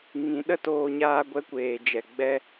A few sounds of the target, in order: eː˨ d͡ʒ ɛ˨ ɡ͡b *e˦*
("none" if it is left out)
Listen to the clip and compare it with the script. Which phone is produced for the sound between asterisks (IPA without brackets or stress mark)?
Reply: ɛ˦